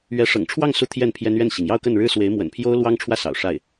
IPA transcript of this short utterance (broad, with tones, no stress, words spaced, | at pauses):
ɥɛ˧˥ʂɤ̰˨˩ŋʈ͡ʂʰwɑ˥˧ŋ su˥˧t̪ʰjɛ˥˩npʰjɛ˥n ɥɛ˥˩nɕi˩ŋ jɑ˥˧ʊ̯kə˥˩nɻɻ̩˥ swe˧˥ɪ̯mwə̰˨˩npʰjo˥ʊ̯lwɑ˥ŋ ʈ͡ʂʰwä˥˩sɑ̰˨˩ʊ̯ ʂa˥˩ɪ̯